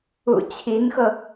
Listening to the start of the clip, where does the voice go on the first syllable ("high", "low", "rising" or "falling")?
low